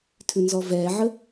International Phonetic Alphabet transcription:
tʰ ʉ n z ɔ v ɛ ʕ ə

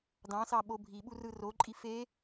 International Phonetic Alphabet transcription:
d ɑ̃ s ɑ ɓ o bʱ i ɓ u r ɯ r o ǃʼ i f e

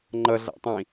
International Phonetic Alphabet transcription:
ŋ͡ǃ ʌ ɮ a̰ tˤ ĩ

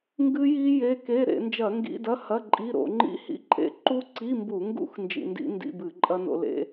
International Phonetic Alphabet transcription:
ŋ ɡ ɨ˦˥ j i˦˥ j e˧˥˧ k e˧˥˧ ɾ ḛ˧˩˧ n d͡ʒ ɐ˧˩˧ ŋ ɡ ḭ˧˥˧ d ɐ˧˥˧ h ɐ˧˥˧ ǃʼ i˧˥˧ ɾ o̰˧˩˧ ŋ͡ǃ ḭ˦˥ h ḭ˧˥˧ ǃʼ ḛ˧˥˧ ǃ u˦˥ ǀ i˧˥˧ m b u˧˩˧ ŋ ɡ ṵ˦˥ x n d͡ʒ ḭ˧ n d ḭ˦˥ n d ḭ˧˥˧ b ɨ˧˩˧ ǃʼ ɐ˦˥ n o̰˧ l ḛ˧˥˧

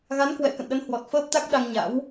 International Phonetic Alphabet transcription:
ɣ a˨˦ n k w ɛ̰˧˨ k ə̰˧˨ n ɗ ə˨˦ n h w ɔ˨˩ t̚ f əː˦˥ p̚ t̪ a˦˥ k̚ ɗ a˧ ŋ ɲ a̰˧˥ w

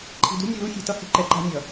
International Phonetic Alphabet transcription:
ǃʰ i̤˨ d ṳ˦ nʲ u˨ l u˦ xʲ e̤˨ t ʌ˦ h i̤˦ ǃ ɛ˨ ǃ a̤˦ nʲ ʌ˨

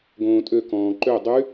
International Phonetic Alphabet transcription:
ɡ õː tʼ ø k ɔ̃ː ǃ ø dˤ y

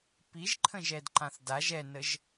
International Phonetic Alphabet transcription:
p i ʒ ǃʰ ə̃ ʒ ɛ d ǃ ã θ d a ʒ ɛ n ə ʒ

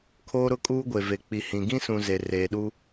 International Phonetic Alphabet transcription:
kʰ oː˦ ɾ ʊ˦ kʼ uː˦ ɡʷ e˨ v e˨ k͡p i˨ h ĩ˨ ɡ ĩ˦ s ũ˨ z e˨ r eː˨ ɗ u˦

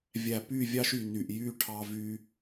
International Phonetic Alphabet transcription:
vʲ æ˨ p y˦˨ vʲ ɑ˦ ʃ y˨ n y˨ ʔ j y˦ ʈʰ ɑ˦ v y˦

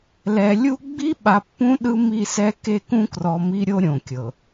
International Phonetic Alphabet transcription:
l ɛ˨ lʲ u˦ ɡ͡b i˦ ɓ a˨ pː ũ˦ ɗ ɯ˦ m i˦˨ s ɛ˦ k e˦˨ k ũ˦ k r ɔ˨ m i˦ ɾʲ o˦ ɾʲ õ˨ kʲ ɤ˨

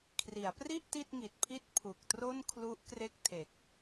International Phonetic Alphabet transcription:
kʰ r i˩˦ a̯ p r i˥˩ ʔ t i˥˩ t̚ ŋ i˨˩ t̚ pʰ i˥˩ t̚ pʰ u˨˩ k̚ t r o˥˩ n kʰ l u˦˥ ʔ k r e˥˩ k̚ tʰ e˨˩ k̚

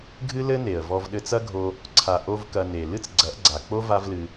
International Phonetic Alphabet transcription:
ɡʱ ɨ˦ l ɘ˦ n e˨ ə̯ v ɔ˧ v ɗ ɘ˧ t͡s ɐ˦ ɡʱ o˧ | ǀʰ a˨ ʔ o˦ v k ɐ˧ n e˨ l ɨ˦ t͡s ɡ͡ǀ ɐ˨˦ ʔ ɡ͡ǀ a˨ k͡p o˦ v a˦ v l ɨ˧

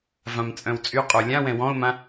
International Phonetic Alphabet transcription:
v ã m t͡sʼ œ̃ w t͡sʼ y qʼ o lʲ ã w ɛ̃ w ɔ̃ ʊ̯ m ã

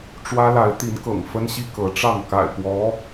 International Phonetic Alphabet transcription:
ʈ͡ʂ w ä˥ l a˧˥ ɪ̯ t̪ i˧˥ n k ɤ̰˨˩ ŋ f ə˥ n ɕ i˥ k ɤ˧˥ ʈ͡ʂ ɑ˥˩ ŋ k a̰˨˩ ɪ̯ p w ɔ˧˥

